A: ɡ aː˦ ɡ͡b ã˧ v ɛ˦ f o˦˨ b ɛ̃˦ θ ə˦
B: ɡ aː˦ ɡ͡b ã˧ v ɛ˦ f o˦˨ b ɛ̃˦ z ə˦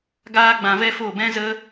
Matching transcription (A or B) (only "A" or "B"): B